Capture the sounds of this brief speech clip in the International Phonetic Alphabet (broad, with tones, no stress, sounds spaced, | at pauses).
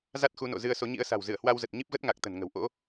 z a˦˥ t̚ x u˨˦ n o̰˧˨ z ɨ˧ ə̯ s o˨˦ ɲ ḭ˧˥ ə̯ s a̤˨˩ w z ɨ˧˩ ə̯ h w a˧ w z ə˨˩ t̚ ɲ i˦˥ p̚ ɣ ə˦˥ t̚ ŋ a˨˩ k̚ t̪ ə̤˨˩ n ŋ ə̤˨˩ w ʔ o̰˧˥